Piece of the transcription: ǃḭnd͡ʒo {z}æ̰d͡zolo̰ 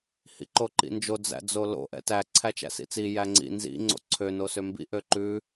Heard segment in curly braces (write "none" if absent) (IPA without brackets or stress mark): d͡z